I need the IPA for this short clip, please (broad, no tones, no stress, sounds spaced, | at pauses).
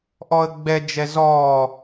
ʔ ɔ ə̯ ɡ͡b ɛ d͡ʒ ɛ z ɔ